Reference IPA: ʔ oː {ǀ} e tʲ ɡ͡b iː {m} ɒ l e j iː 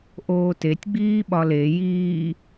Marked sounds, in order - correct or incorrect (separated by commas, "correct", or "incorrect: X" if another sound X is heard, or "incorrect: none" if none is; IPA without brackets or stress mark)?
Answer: incorrect: t, incorrect: ɓ